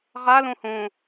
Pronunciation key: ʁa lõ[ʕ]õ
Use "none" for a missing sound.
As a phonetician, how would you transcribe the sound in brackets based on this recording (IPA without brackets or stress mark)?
h